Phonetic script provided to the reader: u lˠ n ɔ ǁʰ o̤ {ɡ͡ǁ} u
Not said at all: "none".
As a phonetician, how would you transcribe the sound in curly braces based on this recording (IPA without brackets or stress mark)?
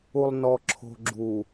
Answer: ɡ͡ǁ